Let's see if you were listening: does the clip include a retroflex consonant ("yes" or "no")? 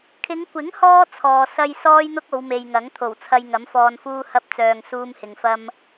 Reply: no